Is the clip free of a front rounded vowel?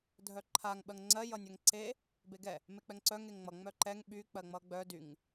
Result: no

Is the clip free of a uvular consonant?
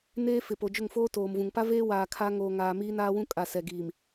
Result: yes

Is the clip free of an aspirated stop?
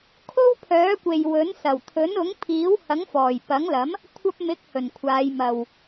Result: no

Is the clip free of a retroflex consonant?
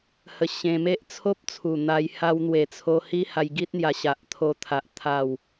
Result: yes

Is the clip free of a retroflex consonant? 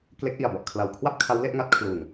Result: yes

